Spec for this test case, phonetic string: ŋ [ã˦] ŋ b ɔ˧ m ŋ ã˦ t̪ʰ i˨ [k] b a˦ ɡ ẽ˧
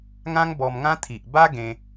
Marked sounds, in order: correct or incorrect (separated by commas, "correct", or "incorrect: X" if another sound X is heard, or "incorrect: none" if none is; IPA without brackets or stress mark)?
correct, incorrect: ʔ